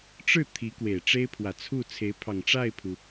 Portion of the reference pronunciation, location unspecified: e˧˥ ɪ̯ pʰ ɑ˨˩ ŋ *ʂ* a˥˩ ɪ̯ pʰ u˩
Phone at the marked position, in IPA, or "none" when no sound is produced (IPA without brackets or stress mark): ʈ͡ʂ